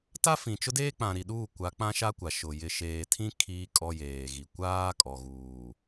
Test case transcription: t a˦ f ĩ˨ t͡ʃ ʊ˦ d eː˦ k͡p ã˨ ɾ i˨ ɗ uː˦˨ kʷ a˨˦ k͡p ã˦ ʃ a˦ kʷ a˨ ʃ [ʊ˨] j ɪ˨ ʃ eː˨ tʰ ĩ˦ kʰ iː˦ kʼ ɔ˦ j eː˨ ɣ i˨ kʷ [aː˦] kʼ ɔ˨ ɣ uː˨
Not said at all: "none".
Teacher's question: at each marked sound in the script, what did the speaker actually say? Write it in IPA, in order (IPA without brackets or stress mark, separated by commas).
ʊ˨, aː˦